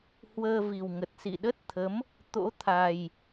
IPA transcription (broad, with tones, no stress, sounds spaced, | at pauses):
h w əː˧ v i˨˩ w ŋ ə˨˩ t̚ s ḭ˧˨ ɗ ə˦˥ t̚ t̪ʰ ə˨˦ m | t̪ o̰˧˥ t̪ʰ a˨˩ j